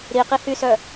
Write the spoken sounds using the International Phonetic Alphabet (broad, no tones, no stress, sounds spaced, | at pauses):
ɾ i q i h y s œ